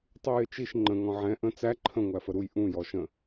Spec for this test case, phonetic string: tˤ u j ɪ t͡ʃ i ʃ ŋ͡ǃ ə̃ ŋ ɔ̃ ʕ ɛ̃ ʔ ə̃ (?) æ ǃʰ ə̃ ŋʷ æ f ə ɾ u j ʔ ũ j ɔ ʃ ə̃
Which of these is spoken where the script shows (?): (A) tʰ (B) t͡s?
B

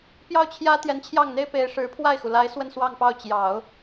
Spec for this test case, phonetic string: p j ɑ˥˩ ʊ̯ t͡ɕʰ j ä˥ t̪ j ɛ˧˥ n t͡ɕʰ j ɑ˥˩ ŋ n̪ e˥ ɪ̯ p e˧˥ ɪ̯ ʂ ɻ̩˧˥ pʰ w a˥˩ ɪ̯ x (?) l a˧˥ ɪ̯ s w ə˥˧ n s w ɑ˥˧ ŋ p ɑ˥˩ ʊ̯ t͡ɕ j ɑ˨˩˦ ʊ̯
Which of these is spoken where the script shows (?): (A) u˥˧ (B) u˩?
B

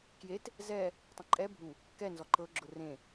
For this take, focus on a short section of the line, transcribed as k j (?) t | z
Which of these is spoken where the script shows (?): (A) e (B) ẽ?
A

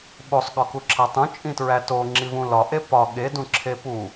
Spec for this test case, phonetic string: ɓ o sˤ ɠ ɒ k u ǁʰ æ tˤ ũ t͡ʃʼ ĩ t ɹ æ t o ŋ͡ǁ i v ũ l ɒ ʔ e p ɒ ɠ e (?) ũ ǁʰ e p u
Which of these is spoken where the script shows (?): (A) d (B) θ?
A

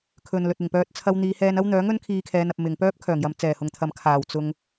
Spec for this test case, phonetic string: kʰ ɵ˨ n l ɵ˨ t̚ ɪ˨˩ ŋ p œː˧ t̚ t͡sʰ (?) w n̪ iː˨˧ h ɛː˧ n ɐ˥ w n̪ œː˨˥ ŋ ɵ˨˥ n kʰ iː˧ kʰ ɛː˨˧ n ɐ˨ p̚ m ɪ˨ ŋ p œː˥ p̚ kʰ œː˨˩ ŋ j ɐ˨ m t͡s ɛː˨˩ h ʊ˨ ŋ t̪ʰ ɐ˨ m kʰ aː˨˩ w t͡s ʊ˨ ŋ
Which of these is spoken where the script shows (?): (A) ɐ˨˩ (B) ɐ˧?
B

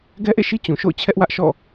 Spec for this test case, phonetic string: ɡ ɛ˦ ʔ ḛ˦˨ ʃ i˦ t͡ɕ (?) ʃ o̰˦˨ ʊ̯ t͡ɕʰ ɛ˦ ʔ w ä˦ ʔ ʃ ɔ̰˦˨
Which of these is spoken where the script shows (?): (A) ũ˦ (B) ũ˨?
B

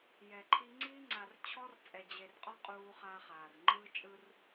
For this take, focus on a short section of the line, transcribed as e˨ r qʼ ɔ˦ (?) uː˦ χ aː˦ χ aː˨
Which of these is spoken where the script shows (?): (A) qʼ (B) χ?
A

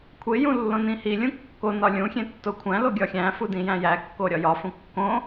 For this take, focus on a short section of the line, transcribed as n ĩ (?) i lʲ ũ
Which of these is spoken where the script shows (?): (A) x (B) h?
B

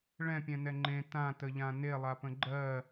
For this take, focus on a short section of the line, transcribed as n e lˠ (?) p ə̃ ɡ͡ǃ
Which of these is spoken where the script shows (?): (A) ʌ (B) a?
B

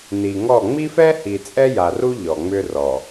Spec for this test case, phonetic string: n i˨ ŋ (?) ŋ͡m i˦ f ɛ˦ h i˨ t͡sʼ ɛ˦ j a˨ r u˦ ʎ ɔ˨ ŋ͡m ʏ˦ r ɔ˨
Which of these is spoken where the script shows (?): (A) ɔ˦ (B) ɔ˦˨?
B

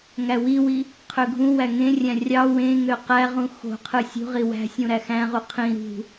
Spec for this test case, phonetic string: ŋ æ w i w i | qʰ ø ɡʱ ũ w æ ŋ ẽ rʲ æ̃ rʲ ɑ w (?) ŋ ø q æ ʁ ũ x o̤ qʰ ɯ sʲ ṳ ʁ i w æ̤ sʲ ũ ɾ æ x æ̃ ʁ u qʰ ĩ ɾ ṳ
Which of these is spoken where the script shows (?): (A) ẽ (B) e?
A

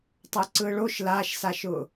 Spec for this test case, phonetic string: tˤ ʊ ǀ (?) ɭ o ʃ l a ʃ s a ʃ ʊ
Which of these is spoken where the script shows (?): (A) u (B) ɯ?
B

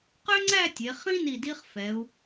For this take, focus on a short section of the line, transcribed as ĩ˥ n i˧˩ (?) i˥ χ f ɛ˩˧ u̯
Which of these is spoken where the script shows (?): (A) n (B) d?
B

